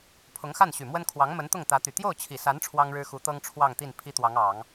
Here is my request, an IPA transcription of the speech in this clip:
pʰ ʊ˧˥ ŋ x a˥˩ n ɕ y˨˩ m w ə˥ n kʰ w ɑ˧˥ ŋ m ə˧˥ n t̪ ʊ˥˩ ŋ t̪ ä˧˥ t̪ y˨˩ t̪ j o˥˩ ʊ̯ t͡ɕʰ i˨˩ s a˧˥ n ʈ͡ʂʰ w ɑ˥ ŋ ɻ ɻ̩˥ x u˧˥ t̪ ɤ˥ ŋ ʈ͡ʂʰ w ɑ˥˧ ŋ t̪ i˥˩ n pʰ i˥ t̪ w ɑ˧˥ ŋ ɑ˨˩˦ ŋ

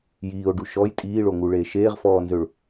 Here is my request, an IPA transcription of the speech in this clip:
j iː o̯ ɖ u ʃ ɔ j tʼ iː ɭ o ŋ u ɭ eː ʃ eː ʁ f ɔː n z ø ɭ

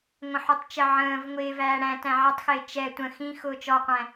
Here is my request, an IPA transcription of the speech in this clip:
ŋʷ ə̃ ħ u tˤ t͡ʃ ə ʕ ə̃ː v ŋʷ ɪː v æː ɽ æ̃ t æ̃ ʕ ʌ tˤ x ɪː t͡ʃ ɛ tʷ ə̃ x ĩ x ʊː t͡ʃ ɔ qʷ æ̃

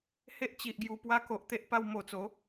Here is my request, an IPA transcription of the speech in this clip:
h e˦ ʔ t͡ɕ i˨ ʔ ɡ j u˧ p w a˦ k o˨ ʔ t̪ e˦ ʔ p a˧ w m o˨˩ t͡s o˨˦

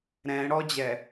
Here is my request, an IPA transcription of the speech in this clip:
ɾ ɛ̃ ɽ ɔ d͡ʑ ɛ

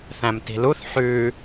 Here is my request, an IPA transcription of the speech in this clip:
θ æ̃ m t i̤ l u θ ħ ʉː

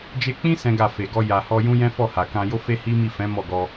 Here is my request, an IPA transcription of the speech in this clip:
d͡ʒ e˧ k͡p ĩ˦ s ɛ̃˦ ɡ a˦˨ f e˨ ɡ ɔ˧ j a˨ h ɔ˧ j ũ˦ j ɛ̃˦ f ɔ˦˨ h a˨ k ã˧ j o˦ f e˦ h i˦ m i˦˨ f ɛ̃˨˦ m ɔ˦˨ ɡ ɔ˧

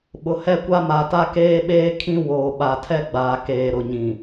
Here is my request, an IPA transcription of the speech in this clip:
ɓ ʊ˨ h ɛ˦ kʷ a˦ m a˨ t a˦ k eː˦ ɓ eː˦ kʰ ĩ˦ w oː˨ ɓ a˨ tʰ ɛ˦ ɡ͡b aː˨ k eː˨ ɾ ʊ˨ ɲ ĩ˨

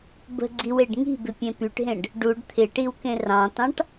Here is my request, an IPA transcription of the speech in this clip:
b ə̤ ɡ͡ǀ i w e ɖ ŋ i̤ b ɪ pʲ ẽ p y ʈ ɦ ẽ ɖ | ɖ u ɖ t̪ʰ ɪ ʈ i w k ẽ r ɑ̃ t ɑ̃ ʈ

